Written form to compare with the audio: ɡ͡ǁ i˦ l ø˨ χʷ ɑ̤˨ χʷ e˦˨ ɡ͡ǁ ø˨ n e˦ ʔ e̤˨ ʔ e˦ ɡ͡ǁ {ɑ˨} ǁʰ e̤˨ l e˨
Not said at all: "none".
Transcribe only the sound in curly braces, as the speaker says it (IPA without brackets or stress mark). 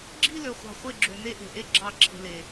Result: ɑ˦˨